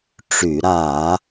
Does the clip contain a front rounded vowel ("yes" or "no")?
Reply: yes